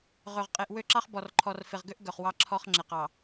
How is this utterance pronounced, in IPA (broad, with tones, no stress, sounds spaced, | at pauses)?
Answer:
ʁ ø˨ ʁ qʼ e˨ ʔ w ø˦˨ ǁ ɑ˦ χ b ɔ˨ r ǃʰ ɔ˨ r f e˨ ʁ ɡ ø˦ ʔ ɡ œ˨ χ w ɑ˦ ǁʰ ɔ˦ χ ŋ͡ǁ e˨ q ɑ˨